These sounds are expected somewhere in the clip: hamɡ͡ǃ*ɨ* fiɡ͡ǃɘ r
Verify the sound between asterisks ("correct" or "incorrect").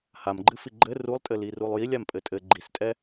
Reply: correct